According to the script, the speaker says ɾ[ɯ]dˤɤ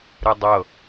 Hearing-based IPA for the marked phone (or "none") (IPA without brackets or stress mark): ɯ